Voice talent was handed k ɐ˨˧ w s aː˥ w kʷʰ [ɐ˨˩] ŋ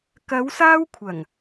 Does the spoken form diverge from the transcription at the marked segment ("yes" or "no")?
no